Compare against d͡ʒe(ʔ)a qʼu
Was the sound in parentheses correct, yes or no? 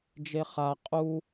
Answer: no